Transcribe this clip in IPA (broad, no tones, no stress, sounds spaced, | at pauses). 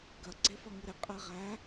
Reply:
ɡ ɐ ɡ͡ǀ e f ɐ ŋ ɨ ɾ ɪ qʼ ɛ ʁ æ